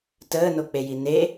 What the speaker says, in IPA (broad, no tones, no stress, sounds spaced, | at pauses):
t əː n o k͡p e j i n e